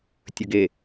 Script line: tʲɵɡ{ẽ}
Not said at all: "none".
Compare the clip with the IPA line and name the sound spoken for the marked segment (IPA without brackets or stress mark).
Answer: e